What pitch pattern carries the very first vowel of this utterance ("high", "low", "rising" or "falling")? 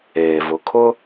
low